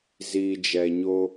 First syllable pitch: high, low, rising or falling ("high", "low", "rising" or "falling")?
low